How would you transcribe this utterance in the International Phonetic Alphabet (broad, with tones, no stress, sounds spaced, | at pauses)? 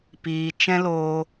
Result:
p iː˨ t͡ʃ ɛ̃˦ l oː˧